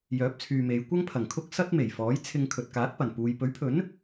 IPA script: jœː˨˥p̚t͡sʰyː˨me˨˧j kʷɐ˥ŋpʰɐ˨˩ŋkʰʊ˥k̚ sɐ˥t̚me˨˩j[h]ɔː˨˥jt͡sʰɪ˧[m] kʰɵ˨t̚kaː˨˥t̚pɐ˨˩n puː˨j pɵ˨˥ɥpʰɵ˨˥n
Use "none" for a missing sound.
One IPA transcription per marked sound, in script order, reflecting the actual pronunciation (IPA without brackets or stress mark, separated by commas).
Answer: f, ŋ